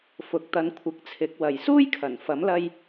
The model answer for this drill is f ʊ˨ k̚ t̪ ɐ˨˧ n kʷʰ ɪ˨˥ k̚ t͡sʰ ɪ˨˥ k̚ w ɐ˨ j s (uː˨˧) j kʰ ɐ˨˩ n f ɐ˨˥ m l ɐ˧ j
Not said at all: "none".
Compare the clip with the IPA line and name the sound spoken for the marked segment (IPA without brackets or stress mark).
uː˥